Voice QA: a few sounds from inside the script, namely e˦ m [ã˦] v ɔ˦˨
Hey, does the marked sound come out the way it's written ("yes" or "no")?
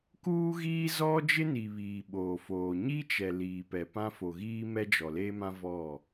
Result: yes